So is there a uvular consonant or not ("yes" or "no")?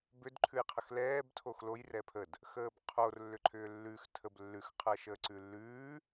yes